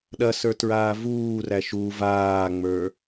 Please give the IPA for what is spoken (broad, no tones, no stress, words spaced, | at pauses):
ɗɐsə˞ tɹaːvuːræ ʃu vaːŋ͡mə˞